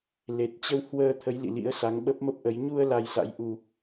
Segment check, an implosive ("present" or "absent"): present